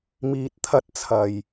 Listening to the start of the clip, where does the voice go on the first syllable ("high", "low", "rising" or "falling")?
low